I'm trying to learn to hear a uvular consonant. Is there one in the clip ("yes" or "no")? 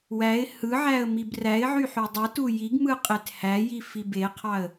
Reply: yes